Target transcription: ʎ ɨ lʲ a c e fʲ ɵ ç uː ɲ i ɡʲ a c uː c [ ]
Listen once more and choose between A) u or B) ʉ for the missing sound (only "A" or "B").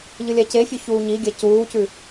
B